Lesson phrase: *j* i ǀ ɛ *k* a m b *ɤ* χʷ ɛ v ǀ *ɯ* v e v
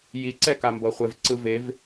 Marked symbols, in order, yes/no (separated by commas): yes, yes, yes, yes